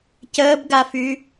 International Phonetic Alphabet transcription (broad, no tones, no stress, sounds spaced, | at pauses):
c əː b ɡ a f y